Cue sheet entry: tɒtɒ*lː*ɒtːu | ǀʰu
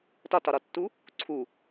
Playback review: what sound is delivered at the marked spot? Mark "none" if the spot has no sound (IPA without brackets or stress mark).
ɾ